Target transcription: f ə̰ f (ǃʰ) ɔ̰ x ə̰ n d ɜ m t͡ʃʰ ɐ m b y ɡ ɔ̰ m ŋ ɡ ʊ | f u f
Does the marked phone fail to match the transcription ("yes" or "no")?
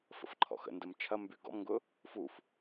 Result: no